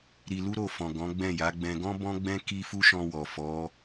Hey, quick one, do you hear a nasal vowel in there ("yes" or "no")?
yes